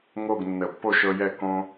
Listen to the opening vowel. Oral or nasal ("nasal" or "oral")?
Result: oral